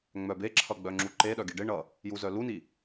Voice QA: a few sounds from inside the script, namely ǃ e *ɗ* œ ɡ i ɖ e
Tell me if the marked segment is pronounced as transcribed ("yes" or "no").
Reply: yes